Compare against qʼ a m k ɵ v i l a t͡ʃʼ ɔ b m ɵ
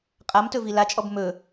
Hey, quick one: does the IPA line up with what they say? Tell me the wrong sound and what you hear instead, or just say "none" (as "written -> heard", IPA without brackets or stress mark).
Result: k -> t